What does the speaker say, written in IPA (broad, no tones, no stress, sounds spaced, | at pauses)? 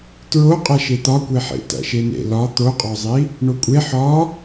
t ɹ o qʼ æ ʃ e t̪ ɒ kʷ e ħ ḛ t æ̰ ʃ e n ḛ l ɒ t̪ o qʼ ɒ zˤ i | ɳ o kʷʼ e ħ ɒ